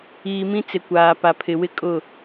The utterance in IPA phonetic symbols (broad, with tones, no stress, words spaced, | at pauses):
iː˨mĩ˦ t͡sɪ˨ kʷaː˨ pa˨pʰɪ˨wɪ˦kʼʊ˦˨